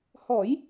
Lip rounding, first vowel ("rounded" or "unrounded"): rounded